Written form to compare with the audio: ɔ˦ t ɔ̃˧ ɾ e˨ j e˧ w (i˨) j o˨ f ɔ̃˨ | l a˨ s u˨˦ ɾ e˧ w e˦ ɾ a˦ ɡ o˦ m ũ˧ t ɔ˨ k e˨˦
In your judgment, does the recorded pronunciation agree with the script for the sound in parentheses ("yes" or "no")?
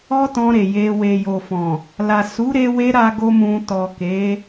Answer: no